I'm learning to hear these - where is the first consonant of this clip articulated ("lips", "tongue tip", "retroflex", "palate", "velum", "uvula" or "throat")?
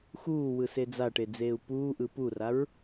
velum